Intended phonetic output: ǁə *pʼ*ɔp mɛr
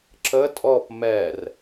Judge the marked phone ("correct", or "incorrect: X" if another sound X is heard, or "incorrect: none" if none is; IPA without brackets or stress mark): incorrect: tʼ